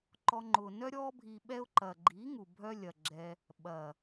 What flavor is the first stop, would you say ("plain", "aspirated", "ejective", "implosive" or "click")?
click